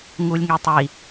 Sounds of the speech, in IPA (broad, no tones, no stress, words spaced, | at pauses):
ŋulʲŋetˤi